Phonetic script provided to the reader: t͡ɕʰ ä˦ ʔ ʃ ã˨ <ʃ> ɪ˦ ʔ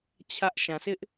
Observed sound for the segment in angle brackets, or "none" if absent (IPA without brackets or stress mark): s